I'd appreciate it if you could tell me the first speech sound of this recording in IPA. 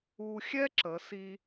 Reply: u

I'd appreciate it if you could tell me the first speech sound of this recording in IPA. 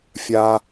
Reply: fʲ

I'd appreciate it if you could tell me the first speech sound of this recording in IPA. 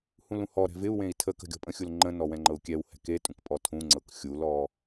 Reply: h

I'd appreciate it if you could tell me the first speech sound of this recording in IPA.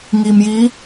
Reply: ŋ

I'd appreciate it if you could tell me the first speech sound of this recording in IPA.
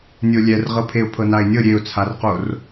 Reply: nʲ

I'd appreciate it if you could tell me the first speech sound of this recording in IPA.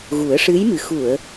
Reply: ɣ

